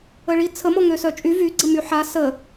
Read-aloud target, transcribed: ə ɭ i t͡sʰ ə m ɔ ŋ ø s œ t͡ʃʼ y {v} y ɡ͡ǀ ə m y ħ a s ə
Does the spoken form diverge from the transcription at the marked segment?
no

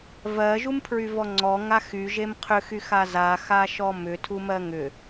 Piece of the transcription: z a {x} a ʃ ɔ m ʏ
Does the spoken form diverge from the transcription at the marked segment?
no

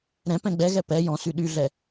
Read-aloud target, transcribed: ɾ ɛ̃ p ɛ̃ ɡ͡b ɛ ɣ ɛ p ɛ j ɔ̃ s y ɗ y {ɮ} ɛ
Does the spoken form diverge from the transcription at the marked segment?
no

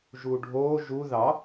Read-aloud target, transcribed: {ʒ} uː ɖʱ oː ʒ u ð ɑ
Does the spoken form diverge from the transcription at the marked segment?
no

